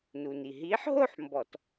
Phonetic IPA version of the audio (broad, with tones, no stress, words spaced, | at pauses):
nu˩ni˩ ɦiː˨˥ħ ɦo˥˧ħ mbɔ˧˩˧t